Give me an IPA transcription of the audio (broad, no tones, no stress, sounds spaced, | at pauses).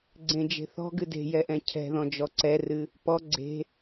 ɡ͡ǀ ẽ d͡ʒ e̤ θ ɔ̤ ɡ ɨ d e̤ j ɛ ʔ ɛ̃ cʰ ɛ̤ ð ɔ̃ d͡ʒ ɔ ǀ ɛ r ɨ | p ɔ ɡ͡ǀ e̤